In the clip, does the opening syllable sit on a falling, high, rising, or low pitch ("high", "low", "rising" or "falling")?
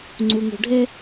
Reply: high